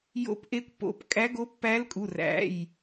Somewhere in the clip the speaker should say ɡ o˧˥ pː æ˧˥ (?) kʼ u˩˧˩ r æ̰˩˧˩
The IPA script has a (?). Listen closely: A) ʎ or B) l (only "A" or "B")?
B